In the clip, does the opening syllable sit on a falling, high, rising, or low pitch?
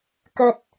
low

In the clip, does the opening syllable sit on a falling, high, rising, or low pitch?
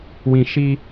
high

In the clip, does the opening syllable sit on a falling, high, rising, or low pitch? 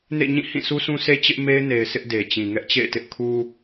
falling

